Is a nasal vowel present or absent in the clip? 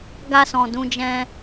present